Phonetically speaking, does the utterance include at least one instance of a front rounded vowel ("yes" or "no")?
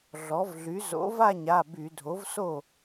yes